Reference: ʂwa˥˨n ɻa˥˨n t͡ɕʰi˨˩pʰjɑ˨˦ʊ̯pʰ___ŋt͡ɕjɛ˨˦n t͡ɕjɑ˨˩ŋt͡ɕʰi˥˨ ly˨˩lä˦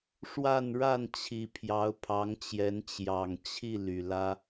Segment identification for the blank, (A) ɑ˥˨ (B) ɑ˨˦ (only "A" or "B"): B